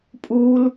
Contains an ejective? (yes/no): yes